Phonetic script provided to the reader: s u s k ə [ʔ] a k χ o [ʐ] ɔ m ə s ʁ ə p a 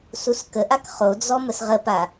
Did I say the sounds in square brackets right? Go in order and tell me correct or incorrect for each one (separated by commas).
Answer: correct, incorrect